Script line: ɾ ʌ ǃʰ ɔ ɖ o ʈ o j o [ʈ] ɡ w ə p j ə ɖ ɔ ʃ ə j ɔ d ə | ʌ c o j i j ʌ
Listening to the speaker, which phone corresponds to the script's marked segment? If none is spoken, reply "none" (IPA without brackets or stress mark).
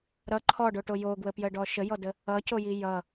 none